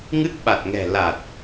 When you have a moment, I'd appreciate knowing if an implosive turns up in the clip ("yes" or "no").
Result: yes